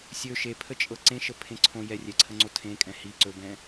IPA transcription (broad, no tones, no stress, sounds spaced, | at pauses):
sʲ ɵ ʃ e pʰ ə t͡ʃʼ ɤ ǀ ẽ ʃ ə pʰ ẽ ǀʰ õ j ɛ rʲ ɛ ǀʰ ə ŋ͡ǀ o tʰ ẽ kʼ ɛ̃ h i ǀ ɵ b ɛ̃